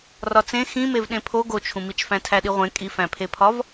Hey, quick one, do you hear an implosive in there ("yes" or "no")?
yes